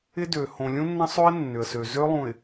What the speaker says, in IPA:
ɪ˦ d ø˨ h õ˨ lʲ ũ˦ nː ɐ̃˦ sˤ ø˦ ɪ̯ nː ʏ˨ ə̯ s ø˨ z ø˦ lˠ ũ˨ ɪ̯

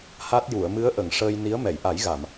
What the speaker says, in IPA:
h a˦˥ t̚ j u˨˩˨ ə̯ m ɨ˧˥ ə̯ ʔ ə˨˩˨ ŋ ʂ əː˧ j n i˧˥ ə̯ m ɛ˨˩˨ j ʔ a˨˩˦ j ɣ a˨˩˨ m

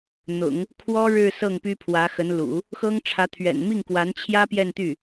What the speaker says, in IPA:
n̪ ʊ̰˨˩˦ ŋ | kʰ w ɔ˥ ɻ ɻ̩˥˧ s ɤ˥˩ ŋ p y˥ pʰ w ä˧˥ x ə˧˥ n l ṵ˨˩˦ | x ɤ˥ ŋ ʈ͡ʂʰ ä˧˥ t̪ʰ ɥ ɛ̰˨˩ n m i˥˩ ŋ k w a˧˥ n t͡ɕʰ j ä˥ p j ɛ˥˧ n t̪ y˥˩

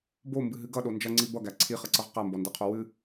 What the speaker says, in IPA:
b o m b ɨ ɦ ɨ ɡ ʌ ɗ o n d͡ʒ ʌ ŋ͡ǀ i b ʌ ɡ æ ǀʰ i χ ʌ ǀ ʌ ʁ q æ m b ɔ n d e qʰ o w ɨ

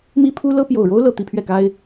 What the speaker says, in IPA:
m i˥ pʰ u˥ l ɤ˥ p j o˨˩ ʊ̯ ɻ o˥ ʊ̯ l ɤ˨˩ t̪ i˥˧ pʰ ɥ ɛ˥˩ k a˥ ɪ̯

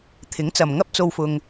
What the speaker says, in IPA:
t̪ʰ ɪ˨˥ ŋ t͡s ɐ˨ m ŋ ɐ˥ p̚ t͡s o˧ w f ʊ˧ ŋ

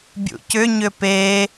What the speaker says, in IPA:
bʲ ṵ c ʏ ɲ ʏ p e

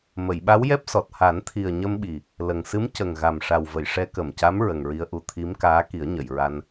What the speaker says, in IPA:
m ə˨˩˨ j ɓ a˧˥ w j ɛ˦˥ p̚ s ɔ˨˩ t̚ h a˨˩˦ n t̪ʰ i˨˩ ə̯ ɲ ə˧ m ɓ i˨˩ | l ə˨˩ ŋ s ɨ˧˥ m c ə˨˩ ŋ ɣ a˨˩ m ʂ a˨˩ w v ə˨˩˨ j ʂ ɛ˧˥ k ə˨˩ m c a˧˥ m ɹ ə˨˩ ŋ ɹ i˧ ə̯ ʔ u˧ t̪ʰ i˧˥ m k aː˧˥ k i˨˩˦ ə̯ ɲ ə˨˩˨ j ɹ a˧ n

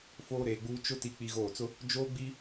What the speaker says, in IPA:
f oː˦ ɾ eː˨ ɡ͡b uː˦ t͡ʃ ʊ˦ t i˦ k͡p i˦ ɣ oː˦˨ t͡s ʊ˦ | d͡ʒ oː˦ ɡ͡b i˦

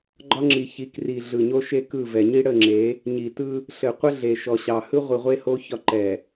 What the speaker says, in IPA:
ɡ͡ǃ ɒ˦ ŋ͡ǁ i˨ ç i˨˦ k r i˨ ɮ ɯ˨ ɲ o˦ ʃ e˦ k ɯ˦˨ v ɛ˨ ɲ i˦ ɽ ə˦˨ ŋ͡ǁ e˨˦ | ɲ i˨ t ɯ˦ | ɬ ɘ˨ qʷ ə˦ ɮ e˨ ʃ ɔ˨ ɕ ɑ˨ h ɯ˦ ʁʷ i˨ ʁʷ e˦ h o˦ ç ɒ˦ ǃ ɛ˨

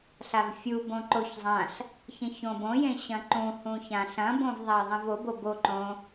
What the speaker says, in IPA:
ɬ a v fʲ u b õ ǃ o ç zˤ ã ɬ | ç ẽ ç õ b õ j ẽ ɕ ɐ̃ ǃ ũ h ũ ç ã ɬ ɐ̃ b õ v ðˤ a ə̯ ðˤ ẽ v o b o b o ǃ õ

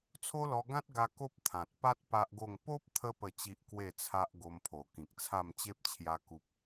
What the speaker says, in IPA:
t͡sʰ o˦ l ɔ˧ ɡ ã˦ t̚ ɡ a˧ k o˦ p̚ t̪ʰ ã˨ t̚ p a˦ t̚ p a˦ ʔ ɡ o˥˧ ŋ p o˦ p̚ t̪ʰ ə˧ p ə˨˩ t͡ɕ i˨ ʔ k w e˥˧ t͡sʰ a˦ ʔ ɡ o˧ m pʰ o˨˩ k ĩ˨ k̚ t͡sʰ a˥˧ m t͡ɕ e˦ p̚ t͡ɕʰ j a˧ k u˦ p̚

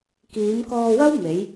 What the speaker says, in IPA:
k iː˨˧ m k ɔː˧ w ɐ˥ w m e˨˧ j

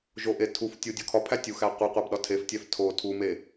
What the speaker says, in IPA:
ʒ o ʔ e tʰ u f tʲ u dʲ ɒ kʰ ɒ pʰ æ tʲ u x æ qʷ i qʷ æ b ɗ ɒ tʰ e f tʲ æ f tʰ o tʰ u m e

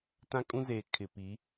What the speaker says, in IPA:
t ã˦ kʼ ũ˦ z eː˨ kʰ ɪ˨ p i˨˦

